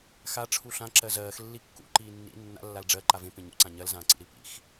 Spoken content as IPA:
xaʈ͡ʂʰu ɬã ǁɜzɜːx lːikːṵǃiː nːḭ nːa̰lːal ɖ͡ʐɜ ǃavẽ pẽɲṵǀã ɲɜlzãːǀḭ ɾipḭx

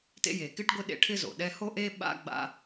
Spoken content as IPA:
tḛ˦je˩kɪ˥ʈ ɡʷɪ˥ɗḛ˦ʈʰɪ˥zo̰˩ ɗɛ˦ho˥ʔe˥ ɓa̰˥ɡ͡ba̰˦

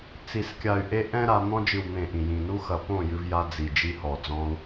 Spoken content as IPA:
t͡si˨skʲa˨y̯ ʔe˦ ʔɛ̃˦ɾa˧ n̪ɔ̃˧d͡ʒɨ˨wn̪ẽ˨ ʔĩ˨jĩ˨ nu˧xɐ˨ põ˦˨jɨ˧vja˧ d͡zi˨d͡ʒi˧hɔ˨ d͡zɔ̃˧u̯

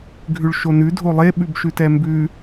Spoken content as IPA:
ɡʱʉɭʃonʉ dʱolˠe ɓʉbʃʉtɛmbʉ

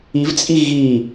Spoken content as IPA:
ivt͡sʼi ɣi

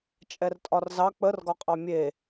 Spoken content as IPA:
t͡ʃʼɛrtʼɒrzɑ k͡pər ɡɒqʼɑmʲe

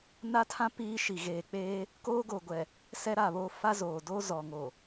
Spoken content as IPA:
na˦tʰã˦ piː˦ ʃi˨ɣeː˨k͡peː˦ | koː˦ɡo˨ɡʷɛ˨ | sɛ˦ ɾa˦˨βoː˦ fa˦zoː˨doː˦ zɔ˨ŋoː˨

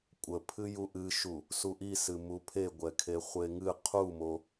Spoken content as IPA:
kʷʼəpʰɨ juʔɨʃu | suʔisɨ mupʰe ɡʷɛkʰeχʷeŋɨ qʰumo

